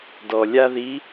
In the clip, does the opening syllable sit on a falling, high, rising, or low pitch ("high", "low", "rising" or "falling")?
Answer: low